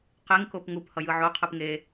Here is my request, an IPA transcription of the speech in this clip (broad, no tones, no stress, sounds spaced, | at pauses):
q e ŋ k o p ŋ u p h ʌ j ɯ ʕ o qʰ ɯ p ŋ e